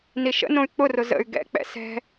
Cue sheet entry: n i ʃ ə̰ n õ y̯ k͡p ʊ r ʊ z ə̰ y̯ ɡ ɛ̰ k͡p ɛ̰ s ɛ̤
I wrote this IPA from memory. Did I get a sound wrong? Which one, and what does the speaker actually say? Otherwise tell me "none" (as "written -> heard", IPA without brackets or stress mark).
none